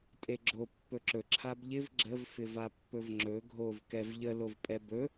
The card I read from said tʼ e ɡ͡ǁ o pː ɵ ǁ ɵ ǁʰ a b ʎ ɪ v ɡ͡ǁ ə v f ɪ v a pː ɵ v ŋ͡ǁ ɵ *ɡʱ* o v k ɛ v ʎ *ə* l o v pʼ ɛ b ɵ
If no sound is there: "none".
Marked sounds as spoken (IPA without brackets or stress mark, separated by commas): ɡʱ, ə